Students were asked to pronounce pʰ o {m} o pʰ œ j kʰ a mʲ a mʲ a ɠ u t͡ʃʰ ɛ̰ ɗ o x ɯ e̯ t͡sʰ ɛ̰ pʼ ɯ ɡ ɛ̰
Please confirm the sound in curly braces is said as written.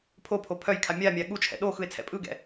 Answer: no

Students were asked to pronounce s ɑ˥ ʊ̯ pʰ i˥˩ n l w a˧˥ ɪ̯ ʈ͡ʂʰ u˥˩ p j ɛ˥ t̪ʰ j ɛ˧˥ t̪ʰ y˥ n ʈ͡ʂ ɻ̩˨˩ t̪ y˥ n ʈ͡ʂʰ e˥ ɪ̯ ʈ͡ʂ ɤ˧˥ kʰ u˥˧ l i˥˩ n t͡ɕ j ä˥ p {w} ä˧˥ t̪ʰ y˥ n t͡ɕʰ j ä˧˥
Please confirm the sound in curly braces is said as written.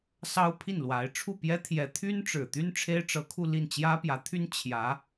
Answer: no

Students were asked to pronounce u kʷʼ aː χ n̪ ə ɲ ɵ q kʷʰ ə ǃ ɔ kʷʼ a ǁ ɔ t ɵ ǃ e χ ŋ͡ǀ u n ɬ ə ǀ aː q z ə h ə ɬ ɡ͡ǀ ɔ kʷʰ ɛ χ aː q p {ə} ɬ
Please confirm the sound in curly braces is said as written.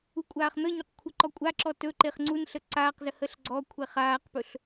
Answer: no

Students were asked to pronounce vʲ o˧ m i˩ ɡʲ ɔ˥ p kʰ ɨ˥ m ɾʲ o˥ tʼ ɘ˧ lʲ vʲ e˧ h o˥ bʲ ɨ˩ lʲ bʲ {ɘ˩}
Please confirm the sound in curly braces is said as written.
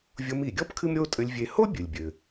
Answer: yes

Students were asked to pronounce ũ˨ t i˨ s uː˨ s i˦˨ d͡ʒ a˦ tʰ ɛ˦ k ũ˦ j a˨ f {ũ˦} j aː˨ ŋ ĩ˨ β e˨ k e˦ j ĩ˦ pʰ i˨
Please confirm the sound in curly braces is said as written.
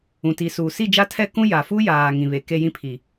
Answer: no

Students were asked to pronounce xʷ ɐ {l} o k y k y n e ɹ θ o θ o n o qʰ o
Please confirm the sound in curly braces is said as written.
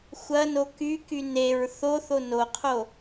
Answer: no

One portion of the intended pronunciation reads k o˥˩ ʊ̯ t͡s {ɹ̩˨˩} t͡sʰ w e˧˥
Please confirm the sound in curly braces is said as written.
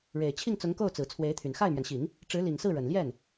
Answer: yes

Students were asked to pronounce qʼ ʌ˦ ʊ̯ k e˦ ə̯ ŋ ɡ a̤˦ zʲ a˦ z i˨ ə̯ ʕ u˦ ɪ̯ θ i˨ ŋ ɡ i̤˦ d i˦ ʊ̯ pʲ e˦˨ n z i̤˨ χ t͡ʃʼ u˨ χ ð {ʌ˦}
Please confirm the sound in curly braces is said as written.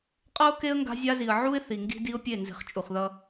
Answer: yes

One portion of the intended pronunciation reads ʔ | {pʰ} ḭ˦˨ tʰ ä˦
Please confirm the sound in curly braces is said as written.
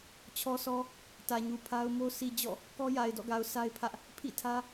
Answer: yes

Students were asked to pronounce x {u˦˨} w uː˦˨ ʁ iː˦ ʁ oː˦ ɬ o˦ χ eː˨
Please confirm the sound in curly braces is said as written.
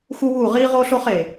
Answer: no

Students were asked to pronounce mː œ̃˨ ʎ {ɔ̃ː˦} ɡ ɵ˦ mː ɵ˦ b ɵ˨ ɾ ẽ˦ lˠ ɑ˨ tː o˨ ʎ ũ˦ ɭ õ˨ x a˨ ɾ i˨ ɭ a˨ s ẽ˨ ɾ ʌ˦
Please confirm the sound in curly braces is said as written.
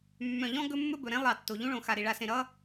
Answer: no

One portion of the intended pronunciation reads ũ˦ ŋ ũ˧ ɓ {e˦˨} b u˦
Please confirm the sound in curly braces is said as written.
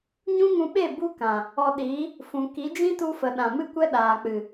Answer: yes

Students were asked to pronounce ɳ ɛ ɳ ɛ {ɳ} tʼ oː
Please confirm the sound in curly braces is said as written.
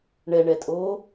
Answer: no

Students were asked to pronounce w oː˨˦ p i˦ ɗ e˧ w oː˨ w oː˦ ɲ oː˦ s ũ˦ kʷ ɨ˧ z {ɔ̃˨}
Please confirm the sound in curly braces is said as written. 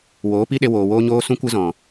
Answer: yes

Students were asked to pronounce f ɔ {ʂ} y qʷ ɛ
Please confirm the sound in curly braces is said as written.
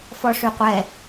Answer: yes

